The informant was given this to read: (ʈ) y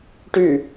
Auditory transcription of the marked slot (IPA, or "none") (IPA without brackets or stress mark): ʈ